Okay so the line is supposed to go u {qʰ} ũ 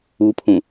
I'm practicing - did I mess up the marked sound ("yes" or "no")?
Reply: yes